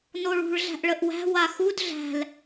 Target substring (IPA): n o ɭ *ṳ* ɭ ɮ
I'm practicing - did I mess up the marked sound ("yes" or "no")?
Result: no